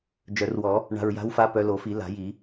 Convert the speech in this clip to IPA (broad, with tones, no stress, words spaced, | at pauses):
d͡ʒœ˨˩˦rwɔ˨˩˦ | ɳa̤˨˩ɹja̤˨˦wfa˨˦ pœ˨˦lo˨˩˦fi˨˩˦ la̤˨˩˦ji˨˩˦